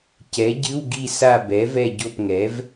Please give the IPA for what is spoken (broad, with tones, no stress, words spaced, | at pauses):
cɛ˩˥ɟɨ˧˥˧wɡi˦˨ sa˦˨bɛ˩˥ vɛ˦˨ɟo˦˨pŋɛ˩˥v